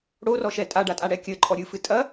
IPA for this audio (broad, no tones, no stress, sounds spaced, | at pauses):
ɽ o r ɔ ʃ ɛ tʼ a ɖ a tʼ a ɽ ɛ kʲ ɘ ǃʼ ɔ ɾʲ ɨ f ɨ tʼ ɐ